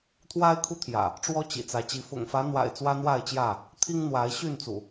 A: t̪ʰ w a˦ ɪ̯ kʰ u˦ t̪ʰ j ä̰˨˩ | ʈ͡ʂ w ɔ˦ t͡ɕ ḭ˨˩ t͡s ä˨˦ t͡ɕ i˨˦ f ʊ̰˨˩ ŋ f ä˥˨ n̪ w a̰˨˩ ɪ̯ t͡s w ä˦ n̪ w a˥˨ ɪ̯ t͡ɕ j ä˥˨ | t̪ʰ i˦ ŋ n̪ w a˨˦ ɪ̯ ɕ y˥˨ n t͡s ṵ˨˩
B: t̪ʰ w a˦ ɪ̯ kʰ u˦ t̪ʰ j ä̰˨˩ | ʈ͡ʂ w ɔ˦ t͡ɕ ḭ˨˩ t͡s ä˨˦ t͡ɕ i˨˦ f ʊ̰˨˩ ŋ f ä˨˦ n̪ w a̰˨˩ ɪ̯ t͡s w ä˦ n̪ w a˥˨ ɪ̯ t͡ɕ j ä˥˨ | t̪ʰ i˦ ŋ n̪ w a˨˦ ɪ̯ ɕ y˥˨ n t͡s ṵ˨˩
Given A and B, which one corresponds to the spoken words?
B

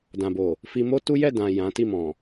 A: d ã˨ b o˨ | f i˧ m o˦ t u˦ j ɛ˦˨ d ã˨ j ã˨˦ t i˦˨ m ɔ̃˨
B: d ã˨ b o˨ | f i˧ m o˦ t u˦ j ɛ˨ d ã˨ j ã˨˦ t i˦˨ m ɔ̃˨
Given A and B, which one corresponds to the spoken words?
A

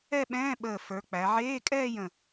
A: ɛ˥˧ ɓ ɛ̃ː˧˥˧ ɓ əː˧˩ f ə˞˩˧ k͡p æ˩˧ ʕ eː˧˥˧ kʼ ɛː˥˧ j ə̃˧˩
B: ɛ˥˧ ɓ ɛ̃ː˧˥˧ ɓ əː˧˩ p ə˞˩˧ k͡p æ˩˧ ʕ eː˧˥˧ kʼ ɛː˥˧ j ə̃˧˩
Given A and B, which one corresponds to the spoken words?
A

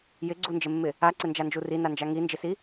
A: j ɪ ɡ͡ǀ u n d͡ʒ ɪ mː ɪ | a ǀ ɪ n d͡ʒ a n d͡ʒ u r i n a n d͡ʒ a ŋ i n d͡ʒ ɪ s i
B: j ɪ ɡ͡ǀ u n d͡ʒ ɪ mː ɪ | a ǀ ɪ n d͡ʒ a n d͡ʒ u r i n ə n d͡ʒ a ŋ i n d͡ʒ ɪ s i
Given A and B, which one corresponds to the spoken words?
A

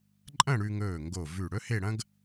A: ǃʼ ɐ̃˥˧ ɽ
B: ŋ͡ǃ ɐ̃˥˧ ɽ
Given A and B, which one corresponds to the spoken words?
A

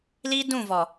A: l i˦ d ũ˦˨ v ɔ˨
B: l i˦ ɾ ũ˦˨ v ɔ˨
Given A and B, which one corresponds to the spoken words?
A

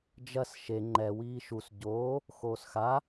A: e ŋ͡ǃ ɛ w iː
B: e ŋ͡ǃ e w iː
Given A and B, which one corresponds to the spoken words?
A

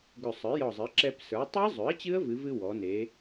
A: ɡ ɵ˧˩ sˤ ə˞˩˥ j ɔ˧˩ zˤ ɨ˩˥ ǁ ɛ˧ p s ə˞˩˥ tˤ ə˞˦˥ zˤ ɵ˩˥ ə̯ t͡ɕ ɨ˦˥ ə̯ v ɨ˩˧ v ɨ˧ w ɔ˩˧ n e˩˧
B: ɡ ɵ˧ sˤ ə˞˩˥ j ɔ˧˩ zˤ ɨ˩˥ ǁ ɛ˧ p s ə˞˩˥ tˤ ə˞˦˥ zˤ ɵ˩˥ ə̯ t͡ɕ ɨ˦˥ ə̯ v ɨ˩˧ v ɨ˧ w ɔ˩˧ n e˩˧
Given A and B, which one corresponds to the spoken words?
A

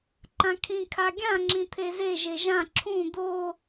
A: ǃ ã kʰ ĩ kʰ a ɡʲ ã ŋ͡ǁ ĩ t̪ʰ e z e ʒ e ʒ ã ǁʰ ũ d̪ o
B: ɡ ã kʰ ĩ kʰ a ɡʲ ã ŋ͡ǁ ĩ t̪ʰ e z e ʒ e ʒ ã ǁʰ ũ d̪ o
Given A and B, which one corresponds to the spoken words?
A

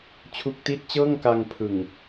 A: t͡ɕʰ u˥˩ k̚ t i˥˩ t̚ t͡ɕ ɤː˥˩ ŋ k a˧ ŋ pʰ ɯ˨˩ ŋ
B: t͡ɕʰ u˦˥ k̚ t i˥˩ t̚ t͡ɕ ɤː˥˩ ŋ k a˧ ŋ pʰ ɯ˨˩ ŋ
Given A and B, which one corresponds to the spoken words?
B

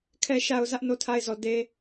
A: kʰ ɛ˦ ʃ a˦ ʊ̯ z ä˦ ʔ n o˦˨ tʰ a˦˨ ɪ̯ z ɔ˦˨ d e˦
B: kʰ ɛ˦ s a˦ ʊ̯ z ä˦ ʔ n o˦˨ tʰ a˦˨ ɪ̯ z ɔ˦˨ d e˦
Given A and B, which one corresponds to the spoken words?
A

